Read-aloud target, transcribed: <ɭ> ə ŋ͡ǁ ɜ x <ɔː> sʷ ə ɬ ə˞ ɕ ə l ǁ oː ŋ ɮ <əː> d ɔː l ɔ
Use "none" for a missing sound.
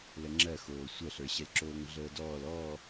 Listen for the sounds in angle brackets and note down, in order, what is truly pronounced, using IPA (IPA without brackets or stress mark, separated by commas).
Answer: l, oː, əː